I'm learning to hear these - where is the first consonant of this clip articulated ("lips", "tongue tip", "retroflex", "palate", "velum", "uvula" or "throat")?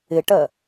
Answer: retroflex